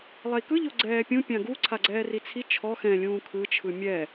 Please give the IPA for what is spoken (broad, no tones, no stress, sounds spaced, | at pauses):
lˠ ɛ i̯ k ɯ ʎ o ɡ͡ǀ ɛː pʲ ũ pʲ ã ɡ u ǀʰ a ɡ͡ǀ ɛː r i t͡sʰ i t͡ʃʰ ɔ x ɛ̃ lʲ ũː kʰ ɯ t͡ʃʰ ɯ mʲ ɛ